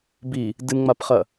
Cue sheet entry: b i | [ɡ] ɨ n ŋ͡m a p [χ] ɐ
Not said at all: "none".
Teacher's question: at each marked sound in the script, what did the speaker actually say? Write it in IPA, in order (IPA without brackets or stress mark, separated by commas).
d, χ